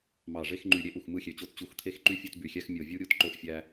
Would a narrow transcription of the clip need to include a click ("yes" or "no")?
yes